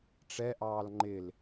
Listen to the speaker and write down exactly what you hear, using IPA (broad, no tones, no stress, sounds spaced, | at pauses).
ʈ͡ʂ ɛ ʔ ɑː l ŋ͡ǃ ɪ l